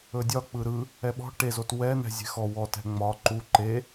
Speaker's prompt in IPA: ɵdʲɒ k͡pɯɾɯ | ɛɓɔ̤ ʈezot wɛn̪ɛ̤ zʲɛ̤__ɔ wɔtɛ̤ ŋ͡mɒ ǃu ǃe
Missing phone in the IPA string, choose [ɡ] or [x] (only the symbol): x